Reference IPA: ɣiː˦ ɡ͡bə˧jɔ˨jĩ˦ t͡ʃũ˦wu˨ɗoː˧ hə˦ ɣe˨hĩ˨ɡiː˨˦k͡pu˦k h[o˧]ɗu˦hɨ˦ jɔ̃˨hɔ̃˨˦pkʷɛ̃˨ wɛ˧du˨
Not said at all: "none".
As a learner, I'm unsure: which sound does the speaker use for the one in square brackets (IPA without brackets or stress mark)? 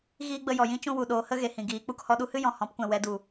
ɔ˧